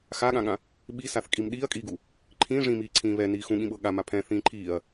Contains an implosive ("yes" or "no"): yes